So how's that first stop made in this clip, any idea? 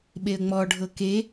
implosive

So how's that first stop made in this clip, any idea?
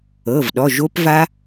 implosive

